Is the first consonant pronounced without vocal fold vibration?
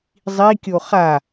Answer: no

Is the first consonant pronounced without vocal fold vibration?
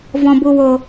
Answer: no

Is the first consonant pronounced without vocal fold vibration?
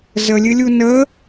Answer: no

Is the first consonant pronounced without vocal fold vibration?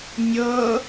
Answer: no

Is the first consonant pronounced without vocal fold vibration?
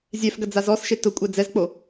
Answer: no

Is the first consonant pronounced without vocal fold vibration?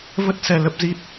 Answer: no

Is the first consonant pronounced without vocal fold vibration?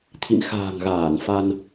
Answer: yes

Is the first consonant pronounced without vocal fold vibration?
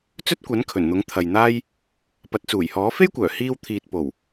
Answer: yes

